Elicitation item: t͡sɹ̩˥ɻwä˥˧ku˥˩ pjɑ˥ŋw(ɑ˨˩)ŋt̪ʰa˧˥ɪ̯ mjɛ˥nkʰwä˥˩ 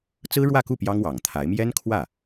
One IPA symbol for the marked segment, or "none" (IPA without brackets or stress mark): ɑ˨˩